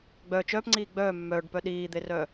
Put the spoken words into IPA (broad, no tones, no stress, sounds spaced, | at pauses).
ɡ͡b œ t͡ʃ œː p ŋ͡ǀ iː ɡ͡b œː mː œː ɖ p œ ɗ iː d̪ e r œ